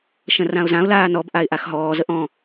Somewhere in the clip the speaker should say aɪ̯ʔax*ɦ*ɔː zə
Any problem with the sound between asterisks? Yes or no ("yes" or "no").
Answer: no